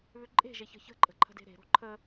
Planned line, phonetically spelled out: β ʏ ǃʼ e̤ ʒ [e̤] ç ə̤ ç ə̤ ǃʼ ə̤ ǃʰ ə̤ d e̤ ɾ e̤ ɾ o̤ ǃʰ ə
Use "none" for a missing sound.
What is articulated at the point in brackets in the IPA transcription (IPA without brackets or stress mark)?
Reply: e